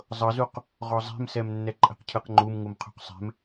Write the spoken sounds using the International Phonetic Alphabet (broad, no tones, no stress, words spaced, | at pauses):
zˤɤzuq | ʁɔzˤe̤msɛm nːɛǃʼɛ̤qcʰɯqŋ͡ǃum ŋumqʰṳqsˤɛ̤m